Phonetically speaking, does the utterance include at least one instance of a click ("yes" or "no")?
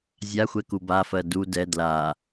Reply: no